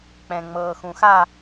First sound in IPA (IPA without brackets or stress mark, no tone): k͡p